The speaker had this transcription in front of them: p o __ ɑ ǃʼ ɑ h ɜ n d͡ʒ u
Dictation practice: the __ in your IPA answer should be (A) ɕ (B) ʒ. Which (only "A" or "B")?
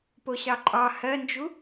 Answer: A